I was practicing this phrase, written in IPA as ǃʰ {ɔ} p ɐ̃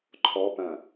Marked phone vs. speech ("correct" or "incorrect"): correct